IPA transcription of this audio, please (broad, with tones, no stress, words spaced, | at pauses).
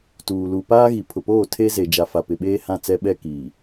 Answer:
tuː˨lu˨ paː˦ɣi˨ pʰʊ˨poː˦˨ tʰe˦ ze˨d͡ʒa˨fa˨ pɪ˨ɓeː˦ hã˦˨t͡sɛ˦ ɓɛ˦kiː˨